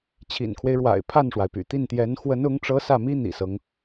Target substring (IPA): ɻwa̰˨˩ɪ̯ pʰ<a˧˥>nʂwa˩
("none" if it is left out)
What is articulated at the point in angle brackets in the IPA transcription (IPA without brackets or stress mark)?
a˥˩